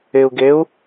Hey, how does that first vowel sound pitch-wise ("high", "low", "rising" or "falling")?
low